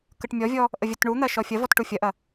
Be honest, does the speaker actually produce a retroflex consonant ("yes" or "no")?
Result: yes